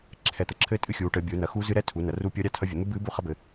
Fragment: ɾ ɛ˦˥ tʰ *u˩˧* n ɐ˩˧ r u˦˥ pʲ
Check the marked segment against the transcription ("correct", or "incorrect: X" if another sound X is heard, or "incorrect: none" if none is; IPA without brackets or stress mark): correct